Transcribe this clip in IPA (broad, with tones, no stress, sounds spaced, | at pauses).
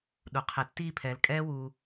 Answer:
ɗ u˨ qʰ e˨ tː iː˧ pʰ ɛː˨ l kʼ ɛː˦ w uː˧